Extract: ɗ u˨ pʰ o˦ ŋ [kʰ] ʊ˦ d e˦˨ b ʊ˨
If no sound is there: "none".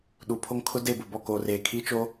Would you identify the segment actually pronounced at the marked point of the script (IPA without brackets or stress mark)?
kʰ